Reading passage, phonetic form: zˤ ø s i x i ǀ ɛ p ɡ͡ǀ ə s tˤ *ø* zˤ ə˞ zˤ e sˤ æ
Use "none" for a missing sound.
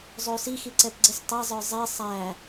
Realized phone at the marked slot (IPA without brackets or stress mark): ɛ